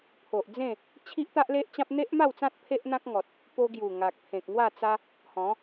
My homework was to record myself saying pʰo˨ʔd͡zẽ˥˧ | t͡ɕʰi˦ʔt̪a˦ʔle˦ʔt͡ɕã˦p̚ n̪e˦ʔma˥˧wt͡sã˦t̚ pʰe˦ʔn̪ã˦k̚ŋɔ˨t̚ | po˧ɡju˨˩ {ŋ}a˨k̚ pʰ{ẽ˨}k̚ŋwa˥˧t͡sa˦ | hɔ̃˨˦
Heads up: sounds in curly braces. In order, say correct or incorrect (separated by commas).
correct, correct